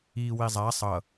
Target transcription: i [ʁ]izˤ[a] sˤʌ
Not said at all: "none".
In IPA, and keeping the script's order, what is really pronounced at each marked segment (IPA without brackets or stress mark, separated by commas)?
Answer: w, a